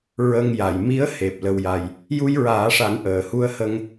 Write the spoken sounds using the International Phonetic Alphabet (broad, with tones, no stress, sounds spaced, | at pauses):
ɹ ə˧ ŋ j a˨˩˨ j m i˧˥ ə̯ h e˨˩ p̚ l ə˧ w j a˧ j | j u˧ j ɹ aː˨˩˦ ʂ a˨˩˦ n ʔ əː˨˩˨ h u˧ ə̯ h ə˧ ŋ